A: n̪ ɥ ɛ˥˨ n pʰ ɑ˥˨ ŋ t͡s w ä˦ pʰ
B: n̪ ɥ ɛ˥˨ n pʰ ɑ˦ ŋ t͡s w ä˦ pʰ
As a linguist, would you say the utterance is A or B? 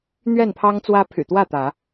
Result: B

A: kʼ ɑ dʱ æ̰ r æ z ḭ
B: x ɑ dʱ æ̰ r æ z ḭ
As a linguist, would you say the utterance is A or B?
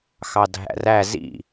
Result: B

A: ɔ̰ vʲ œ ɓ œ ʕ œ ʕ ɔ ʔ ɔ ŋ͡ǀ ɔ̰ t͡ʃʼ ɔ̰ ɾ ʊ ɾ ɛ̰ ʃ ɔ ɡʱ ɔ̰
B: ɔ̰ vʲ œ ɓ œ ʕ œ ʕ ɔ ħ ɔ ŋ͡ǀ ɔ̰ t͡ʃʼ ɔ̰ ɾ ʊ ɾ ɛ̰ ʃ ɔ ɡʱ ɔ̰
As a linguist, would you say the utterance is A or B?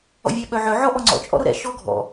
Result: A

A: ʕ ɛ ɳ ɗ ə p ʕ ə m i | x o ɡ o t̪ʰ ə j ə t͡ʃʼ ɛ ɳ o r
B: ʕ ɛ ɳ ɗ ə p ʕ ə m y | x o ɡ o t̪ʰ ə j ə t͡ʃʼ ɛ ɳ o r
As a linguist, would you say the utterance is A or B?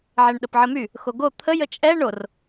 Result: B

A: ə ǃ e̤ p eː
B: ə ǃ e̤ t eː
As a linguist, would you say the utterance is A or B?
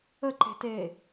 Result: B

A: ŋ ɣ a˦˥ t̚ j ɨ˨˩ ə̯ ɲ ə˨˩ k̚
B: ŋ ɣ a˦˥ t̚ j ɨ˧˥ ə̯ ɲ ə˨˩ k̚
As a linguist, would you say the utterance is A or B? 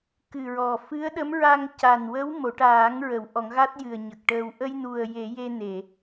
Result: A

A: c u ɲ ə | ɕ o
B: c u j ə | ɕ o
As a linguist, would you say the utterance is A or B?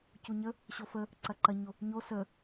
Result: A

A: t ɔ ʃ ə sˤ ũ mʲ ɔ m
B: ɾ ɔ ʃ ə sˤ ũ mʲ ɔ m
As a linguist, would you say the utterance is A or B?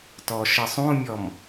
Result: A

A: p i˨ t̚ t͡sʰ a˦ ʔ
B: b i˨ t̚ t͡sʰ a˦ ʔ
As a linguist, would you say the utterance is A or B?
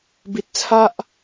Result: B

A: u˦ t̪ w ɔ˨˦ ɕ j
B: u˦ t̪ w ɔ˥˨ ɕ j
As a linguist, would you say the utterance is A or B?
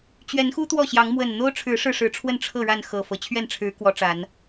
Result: B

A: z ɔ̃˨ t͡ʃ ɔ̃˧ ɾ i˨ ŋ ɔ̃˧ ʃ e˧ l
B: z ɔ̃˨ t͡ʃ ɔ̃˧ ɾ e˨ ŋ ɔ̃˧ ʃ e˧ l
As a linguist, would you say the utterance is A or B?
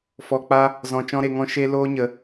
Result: B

